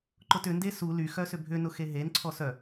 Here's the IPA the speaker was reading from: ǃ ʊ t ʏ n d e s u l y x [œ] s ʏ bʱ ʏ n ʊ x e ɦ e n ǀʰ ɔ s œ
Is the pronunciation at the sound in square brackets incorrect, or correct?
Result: correct